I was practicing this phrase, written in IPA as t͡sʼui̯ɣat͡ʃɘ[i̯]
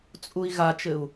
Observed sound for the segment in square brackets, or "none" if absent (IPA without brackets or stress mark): u̯